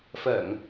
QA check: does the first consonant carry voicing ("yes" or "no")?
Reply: no